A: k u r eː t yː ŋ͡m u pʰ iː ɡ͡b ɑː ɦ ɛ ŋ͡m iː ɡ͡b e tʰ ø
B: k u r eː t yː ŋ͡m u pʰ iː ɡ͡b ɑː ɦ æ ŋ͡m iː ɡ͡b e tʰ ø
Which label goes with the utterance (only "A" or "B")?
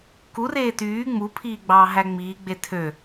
B